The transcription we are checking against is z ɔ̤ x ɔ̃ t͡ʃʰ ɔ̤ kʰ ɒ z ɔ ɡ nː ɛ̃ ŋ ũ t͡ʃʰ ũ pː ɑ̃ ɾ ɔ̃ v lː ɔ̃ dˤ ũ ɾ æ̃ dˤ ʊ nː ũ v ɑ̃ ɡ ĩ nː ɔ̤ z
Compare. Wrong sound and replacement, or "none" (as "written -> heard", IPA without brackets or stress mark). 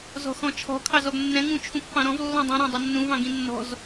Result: ɒ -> ɑ